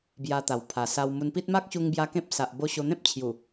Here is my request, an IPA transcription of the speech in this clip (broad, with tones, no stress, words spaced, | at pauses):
bja˧t̪a˨˩w pʰa˨˩sa˧w mu˧npi˦t̚ ma˦k̚ɕu˧ŋ bja˧ kẽ˦p̚ sa˨ʔbo˧ɕo˧n̪ẽ˦p̚ t͡ɕʰju˨˩